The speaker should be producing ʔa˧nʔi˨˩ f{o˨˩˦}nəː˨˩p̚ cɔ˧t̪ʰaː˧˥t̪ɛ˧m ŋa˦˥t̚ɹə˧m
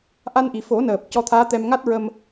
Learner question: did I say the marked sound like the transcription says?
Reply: yes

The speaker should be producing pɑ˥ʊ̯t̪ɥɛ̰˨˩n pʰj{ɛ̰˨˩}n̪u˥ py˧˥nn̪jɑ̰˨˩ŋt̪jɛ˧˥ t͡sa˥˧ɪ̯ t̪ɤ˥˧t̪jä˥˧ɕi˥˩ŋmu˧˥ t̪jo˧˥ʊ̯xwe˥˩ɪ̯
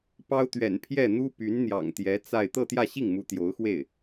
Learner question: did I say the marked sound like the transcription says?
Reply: no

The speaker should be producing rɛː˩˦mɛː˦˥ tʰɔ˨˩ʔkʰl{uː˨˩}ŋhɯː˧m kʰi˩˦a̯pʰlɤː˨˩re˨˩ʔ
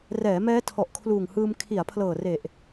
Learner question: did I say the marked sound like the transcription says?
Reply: yes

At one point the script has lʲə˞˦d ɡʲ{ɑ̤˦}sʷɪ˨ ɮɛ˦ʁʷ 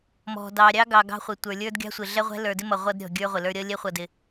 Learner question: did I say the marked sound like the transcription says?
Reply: yes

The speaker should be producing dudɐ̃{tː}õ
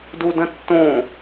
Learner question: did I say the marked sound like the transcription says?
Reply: yes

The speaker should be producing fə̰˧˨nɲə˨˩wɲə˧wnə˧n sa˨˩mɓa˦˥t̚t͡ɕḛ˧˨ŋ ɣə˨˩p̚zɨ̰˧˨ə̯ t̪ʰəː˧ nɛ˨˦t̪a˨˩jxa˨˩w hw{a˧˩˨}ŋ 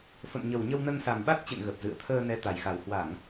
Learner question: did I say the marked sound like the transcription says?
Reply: yes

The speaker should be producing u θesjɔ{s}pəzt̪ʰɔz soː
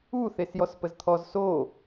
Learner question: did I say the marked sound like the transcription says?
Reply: yes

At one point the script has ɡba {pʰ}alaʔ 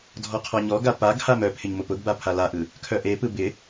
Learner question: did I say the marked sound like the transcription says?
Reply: yes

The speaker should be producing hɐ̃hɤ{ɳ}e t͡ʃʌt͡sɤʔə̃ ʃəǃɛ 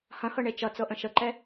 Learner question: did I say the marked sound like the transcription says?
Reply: yes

